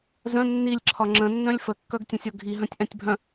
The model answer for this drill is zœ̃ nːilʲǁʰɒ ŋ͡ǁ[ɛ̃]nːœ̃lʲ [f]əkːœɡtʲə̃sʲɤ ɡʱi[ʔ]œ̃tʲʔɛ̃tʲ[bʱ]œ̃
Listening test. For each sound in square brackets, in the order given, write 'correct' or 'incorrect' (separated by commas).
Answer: incorrect, correct, incorrect, correct